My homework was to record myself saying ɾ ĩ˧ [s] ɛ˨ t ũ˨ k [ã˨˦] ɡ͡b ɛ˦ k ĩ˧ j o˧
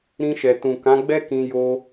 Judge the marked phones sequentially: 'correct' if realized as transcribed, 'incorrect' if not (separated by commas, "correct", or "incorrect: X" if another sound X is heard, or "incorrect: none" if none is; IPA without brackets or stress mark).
incorrect: ʃ, correct